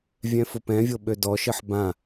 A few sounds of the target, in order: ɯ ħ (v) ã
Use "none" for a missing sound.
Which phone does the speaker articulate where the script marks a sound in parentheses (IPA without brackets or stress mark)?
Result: b